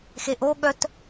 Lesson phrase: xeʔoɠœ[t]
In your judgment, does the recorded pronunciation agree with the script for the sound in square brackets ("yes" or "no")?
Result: yes